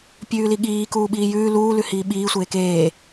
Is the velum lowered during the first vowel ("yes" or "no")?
no